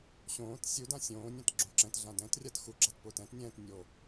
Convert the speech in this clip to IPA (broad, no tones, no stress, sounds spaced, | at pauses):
ɕ õː t sʲ u d ã sʲ õː nʲ ã t ɡ͡ǁ õ ǁ ɛ̃ t ɮ ã d ɛ̃ t rʲ a t x u ɡ͡ǁ a t p ʊː t ɛ̃ t nʲ ɛ̃ː t nʲ o